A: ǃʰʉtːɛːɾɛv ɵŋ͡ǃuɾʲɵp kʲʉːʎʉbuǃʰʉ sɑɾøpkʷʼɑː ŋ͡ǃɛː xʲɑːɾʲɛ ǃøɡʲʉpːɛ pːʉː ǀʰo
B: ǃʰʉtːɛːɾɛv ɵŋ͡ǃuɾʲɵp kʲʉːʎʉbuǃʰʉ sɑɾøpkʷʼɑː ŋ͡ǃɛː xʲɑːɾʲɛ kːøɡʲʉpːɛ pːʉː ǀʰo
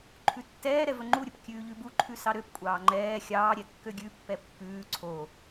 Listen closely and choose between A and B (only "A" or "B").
B